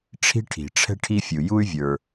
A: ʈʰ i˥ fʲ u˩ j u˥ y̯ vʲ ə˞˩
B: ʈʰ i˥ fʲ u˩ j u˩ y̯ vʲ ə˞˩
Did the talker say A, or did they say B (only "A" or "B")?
A